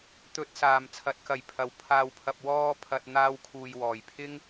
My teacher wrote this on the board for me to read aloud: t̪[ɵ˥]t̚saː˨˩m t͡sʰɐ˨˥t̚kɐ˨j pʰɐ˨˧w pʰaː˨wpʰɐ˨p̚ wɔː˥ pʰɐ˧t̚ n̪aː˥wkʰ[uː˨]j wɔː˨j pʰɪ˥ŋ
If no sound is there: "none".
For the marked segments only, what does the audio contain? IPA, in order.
ɵ˨, uː˧

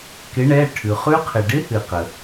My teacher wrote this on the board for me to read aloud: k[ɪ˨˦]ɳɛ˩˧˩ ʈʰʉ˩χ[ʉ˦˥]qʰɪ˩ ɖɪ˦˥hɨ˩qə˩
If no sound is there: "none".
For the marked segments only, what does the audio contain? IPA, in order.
ɪ˨˦, ʉ˦˥

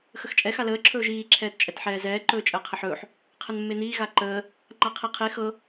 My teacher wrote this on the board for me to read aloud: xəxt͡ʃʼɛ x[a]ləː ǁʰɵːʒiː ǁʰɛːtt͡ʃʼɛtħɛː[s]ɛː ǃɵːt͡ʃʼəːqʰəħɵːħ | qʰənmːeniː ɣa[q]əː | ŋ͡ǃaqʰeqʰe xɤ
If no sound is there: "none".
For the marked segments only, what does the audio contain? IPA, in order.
a, z, ǃ

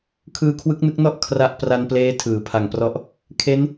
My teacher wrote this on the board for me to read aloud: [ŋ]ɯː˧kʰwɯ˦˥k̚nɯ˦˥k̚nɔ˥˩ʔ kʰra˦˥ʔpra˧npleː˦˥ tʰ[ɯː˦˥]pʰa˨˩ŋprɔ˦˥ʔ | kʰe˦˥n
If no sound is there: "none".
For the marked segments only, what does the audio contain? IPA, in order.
kʰ, ɯː˩˦

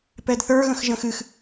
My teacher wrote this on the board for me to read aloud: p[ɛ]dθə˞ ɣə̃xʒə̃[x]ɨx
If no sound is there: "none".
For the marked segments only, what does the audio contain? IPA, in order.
ɛ, x

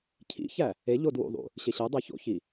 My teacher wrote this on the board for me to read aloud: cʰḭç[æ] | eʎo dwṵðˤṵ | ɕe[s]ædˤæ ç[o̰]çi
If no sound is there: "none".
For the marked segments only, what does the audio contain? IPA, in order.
æ, ɕ, o̰

